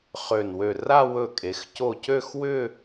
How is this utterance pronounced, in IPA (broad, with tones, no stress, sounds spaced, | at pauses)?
χ ø˧˩ n w ø˧˩ r a˥˧ w ɵ˧˩ kʼ e˩˧ x c o˧˩ c ø˥˧ x w ʏ˥˧